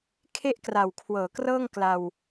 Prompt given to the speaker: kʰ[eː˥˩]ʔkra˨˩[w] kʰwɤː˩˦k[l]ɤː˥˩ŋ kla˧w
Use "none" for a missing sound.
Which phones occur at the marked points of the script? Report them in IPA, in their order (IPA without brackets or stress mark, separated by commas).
e˥˩, w, r